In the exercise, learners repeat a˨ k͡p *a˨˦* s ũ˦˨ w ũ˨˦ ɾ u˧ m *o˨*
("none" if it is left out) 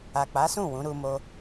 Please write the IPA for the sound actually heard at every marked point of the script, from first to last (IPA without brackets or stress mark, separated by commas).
a˨˦, o˧